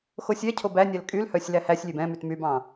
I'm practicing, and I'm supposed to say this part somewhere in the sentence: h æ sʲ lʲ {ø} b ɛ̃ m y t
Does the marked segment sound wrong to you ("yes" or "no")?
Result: no